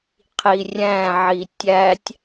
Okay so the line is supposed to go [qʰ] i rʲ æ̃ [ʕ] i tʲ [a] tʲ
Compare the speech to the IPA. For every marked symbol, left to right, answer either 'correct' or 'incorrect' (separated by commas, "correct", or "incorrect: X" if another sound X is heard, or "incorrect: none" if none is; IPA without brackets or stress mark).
correct, correct, incorrect: æ